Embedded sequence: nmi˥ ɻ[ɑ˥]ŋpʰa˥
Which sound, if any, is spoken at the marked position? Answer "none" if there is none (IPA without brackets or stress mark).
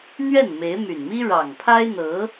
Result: ɑ˨˩